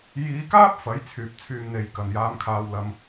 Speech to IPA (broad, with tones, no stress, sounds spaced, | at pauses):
j iː˨˧ k aː˥ p̚ f ɐ˨˥ j t͡sʰ yː˨ p̚ t͡sʰ yː˨ m n̪ e˨ j k ɐ˨˩ n j aː˨˧ m kʰ aː˨ w l ɐ˨ m